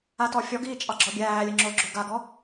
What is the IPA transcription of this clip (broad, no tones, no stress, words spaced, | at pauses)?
atɔfʲɔɡiː t͡ʃʼɑɡ͡ǁɔbʲæːlʲə ŋ͡ǁo ɡ͡ǁoɡaɡɔ